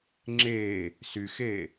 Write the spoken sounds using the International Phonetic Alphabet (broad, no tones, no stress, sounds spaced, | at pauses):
ŋ͡ǁ e | s y x e